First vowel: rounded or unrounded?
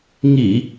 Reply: unrounded